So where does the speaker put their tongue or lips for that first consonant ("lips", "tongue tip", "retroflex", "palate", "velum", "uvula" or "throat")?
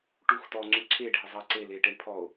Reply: retroflex